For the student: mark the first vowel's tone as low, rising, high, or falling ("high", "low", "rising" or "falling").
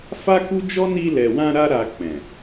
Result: high